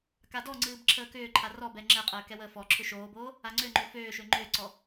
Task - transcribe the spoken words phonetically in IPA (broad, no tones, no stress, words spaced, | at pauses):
kadɔŋ͡ǀɨːb ǁʰəːkʏːǃʰa rɔbɛ ŋ͡ǁɛqʼəː kɛwəːfɔǁʰʏ ʃoːboː | aŋ͡ǀøŋ͡ǃø føːʃø ŋ͡ǃʏːǀɔ